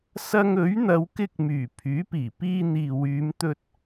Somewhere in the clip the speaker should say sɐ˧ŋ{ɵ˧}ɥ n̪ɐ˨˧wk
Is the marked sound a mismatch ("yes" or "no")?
yes